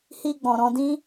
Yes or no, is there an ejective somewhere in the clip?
no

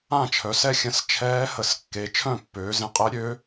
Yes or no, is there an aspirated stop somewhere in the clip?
yes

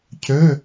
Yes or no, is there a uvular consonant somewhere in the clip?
no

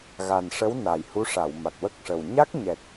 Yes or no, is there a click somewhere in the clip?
no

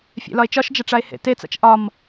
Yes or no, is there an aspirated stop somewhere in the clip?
no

